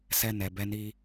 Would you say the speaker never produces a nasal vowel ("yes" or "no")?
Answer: yes